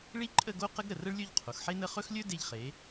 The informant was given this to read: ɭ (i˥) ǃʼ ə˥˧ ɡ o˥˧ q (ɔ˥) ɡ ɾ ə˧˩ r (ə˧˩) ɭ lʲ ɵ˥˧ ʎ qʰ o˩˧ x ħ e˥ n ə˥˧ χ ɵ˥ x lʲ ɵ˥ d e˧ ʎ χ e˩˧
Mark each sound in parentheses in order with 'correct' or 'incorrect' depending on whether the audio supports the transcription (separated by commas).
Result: correct, incorrect, incorrect